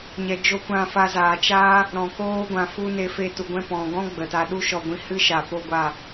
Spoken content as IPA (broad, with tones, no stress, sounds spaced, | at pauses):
ɲ ɛ˨ d͡ʒ o˦˨ kʷ ã˦˨ f a˧ z aː˨ t͡ʃ aː˦ | ɾ ɔ̃˨ k oː˧ ɡʷ ã˨ f u˧ n e˧ f e˧ t u˨ ɡʷ ɛ̃˧ p ɔ̃˨ ɡ ɔ̃˦ ɡ͡b ə˨ t a˧ ɗ u˦ ʃ ɔ˧ ɡʷ ĩ˧ h ɨ˦ ʃ a˨ p o˦ ɡʷ a˦˨